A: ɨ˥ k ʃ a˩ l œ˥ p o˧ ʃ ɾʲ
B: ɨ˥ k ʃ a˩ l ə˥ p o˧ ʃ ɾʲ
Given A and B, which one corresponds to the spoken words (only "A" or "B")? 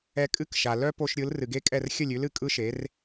A